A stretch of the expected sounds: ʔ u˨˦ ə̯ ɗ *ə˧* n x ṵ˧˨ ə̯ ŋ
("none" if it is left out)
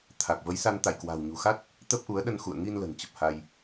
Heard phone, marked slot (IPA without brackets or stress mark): ə˧